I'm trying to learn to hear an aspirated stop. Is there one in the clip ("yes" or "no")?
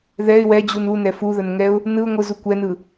no